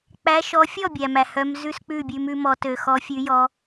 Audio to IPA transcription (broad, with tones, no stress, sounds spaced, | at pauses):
k͡p æ˨˦ ʃ ɔ˨˦ fʲ ɔ˥˩ bʲ æ˨ m æ˨ h œ˨˦ m z ʉ˥˩ s k͡p ʉ˥˩ bʲ ʉ˨˦ m ʉ˨˦ m ɔ˨˦ t ø˨ x ɔ˨˦ fʲ ʉ˨˦ j ɔ˨˦